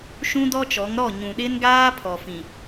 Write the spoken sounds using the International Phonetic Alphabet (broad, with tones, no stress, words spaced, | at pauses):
ʃũ˦dɔ˦t͡ʃɔ˨˦ŋ ɾɔ˦˨ɲũ˨ ɗɪ˦nɡaː˦ pʰɔ˨fĩ˨